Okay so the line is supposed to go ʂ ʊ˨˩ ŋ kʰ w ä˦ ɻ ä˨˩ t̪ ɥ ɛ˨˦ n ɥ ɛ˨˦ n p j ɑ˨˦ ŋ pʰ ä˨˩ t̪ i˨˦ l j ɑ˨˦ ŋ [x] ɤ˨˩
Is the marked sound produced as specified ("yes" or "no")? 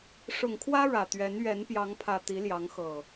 yes